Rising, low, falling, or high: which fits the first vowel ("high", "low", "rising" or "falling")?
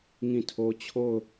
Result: falling